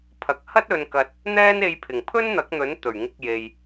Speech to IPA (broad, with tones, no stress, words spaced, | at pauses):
pʰɐ˨˥k̚hɐ˥t̚ ɵ˧nkɐ˧t̚ | n̪ɛː˥ne˧jpʰɪ˨˩ŋ pʰɵ˥nn̪ɐ˨˥k̚n̪ɵ˨˥n t̪ɵ˨˩ɥŋɪ˧k̚je˨j